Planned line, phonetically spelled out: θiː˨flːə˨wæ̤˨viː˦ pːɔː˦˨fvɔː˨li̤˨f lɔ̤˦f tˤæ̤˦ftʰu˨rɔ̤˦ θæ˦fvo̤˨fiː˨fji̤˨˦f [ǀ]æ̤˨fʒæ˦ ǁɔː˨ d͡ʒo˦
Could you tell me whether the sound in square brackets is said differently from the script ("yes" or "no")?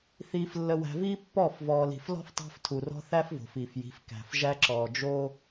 yes